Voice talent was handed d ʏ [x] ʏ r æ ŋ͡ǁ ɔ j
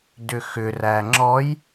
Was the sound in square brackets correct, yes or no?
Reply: yes